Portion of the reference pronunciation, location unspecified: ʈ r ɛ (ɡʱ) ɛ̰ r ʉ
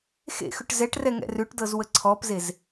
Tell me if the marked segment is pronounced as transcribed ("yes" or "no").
no